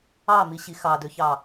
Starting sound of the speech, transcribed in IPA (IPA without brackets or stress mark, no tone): ɑ